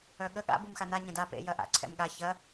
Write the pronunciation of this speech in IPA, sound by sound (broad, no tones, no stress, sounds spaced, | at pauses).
œ ɠ ə ɠ a̰ b u m x a n a ɲ ɛ̃ d a p ḛ j ɐ ʔ a̰ ǀʰ ɛ̰ m ɠ a ç ɐ